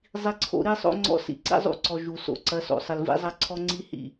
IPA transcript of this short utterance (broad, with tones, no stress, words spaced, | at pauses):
zˤi˦ǀʰo̰˦ ɾi˦sˤo̰˦ŋ͡ǀɔ̰˦sḭ˨ ǀḭ˦zˤṵ˦ǀɔ˨ ʒu˨so̰˨ ǀɐ˨˦so̰˨sˤɘ˨l vḭ˦zˤɐ˦ ǀʰɔ˦ŋ͡ǀi˦hḭ˨